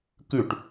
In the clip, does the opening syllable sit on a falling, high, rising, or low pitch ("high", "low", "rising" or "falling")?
falling